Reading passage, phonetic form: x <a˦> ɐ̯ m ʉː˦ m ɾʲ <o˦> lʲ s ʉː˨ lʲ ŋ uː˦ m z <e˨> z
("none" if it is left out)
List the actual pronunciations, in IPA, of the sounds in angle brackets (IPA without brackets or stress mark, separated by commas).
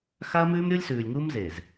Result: a˦, o˦, e˨